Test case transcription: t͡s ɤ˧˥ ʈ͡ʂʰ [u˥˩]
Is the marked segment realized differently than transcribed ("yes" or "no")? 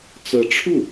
no